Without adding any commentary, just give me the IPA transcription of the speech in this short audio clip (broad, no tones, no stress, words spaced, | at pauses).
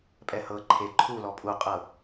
pʼɛhɤ ǃʰe ǃʰu lɔpʼu qʼɤ